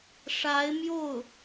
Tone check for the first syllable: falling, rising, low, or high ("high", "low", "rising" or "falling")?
rising